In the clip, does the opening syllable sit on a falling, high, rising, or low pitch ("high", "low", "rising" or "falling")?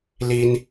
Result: high